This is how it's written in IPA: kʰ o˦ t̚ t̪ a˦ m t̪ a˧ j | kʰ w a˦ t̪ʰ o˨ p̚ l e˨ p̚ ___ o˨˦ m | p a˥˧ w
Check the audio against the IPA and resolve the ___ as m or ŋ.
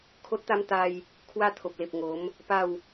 ŋ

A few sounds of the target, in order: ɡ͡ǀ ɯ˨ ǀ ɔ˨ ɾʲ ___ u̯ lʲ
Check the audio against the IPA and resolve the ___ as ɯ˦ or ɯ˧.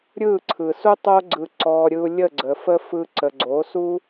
ɯ˧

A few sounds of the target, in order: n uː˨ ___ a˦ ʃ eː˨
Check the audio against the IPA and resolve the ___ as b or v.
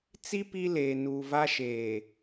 v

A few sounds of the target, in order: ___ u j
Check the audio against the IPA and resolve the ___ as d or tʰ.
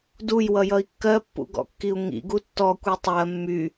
d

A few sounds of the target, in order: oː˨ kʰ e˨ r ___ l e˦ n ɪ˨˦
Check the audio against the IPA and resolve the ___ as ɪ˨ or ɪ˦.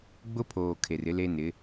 ɪ˦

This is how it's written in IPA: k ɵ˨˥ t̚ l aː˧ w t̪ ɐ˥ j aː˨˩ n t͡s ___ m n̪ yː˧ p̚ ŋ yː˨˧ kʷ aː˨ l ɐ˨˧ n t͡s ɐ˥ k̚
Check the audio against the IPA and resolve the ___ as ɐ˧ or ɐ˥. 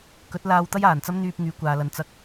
ɐ˥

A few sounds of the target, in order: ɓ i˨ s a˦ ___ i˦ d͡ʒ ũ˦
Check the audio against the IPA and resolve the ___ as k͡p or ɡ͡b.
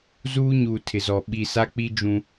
k͡p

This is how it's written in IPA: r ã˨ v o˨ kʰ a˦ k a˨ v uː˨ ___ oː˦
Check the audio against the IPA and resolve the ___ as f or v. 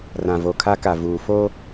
f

